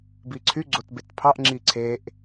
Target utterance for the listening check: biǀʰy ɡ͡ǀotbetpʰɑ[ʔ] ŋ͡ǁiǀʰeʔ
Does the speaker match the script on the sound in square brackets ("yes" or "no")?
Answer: yes